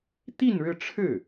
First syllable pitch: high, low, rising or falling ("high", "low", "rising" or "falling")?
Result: falling